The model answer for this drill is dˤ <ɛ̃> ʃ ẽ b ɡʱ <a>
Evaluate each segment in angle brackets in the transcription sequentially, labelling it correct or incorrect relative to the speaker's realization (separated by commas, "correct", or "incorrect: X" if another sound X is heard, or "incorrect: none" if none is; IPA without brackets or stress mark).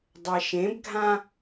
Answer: incorrect: ɛ, incorrect: ã